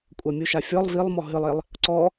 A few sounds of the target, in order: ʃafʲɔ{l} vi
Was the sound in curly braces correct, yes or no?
no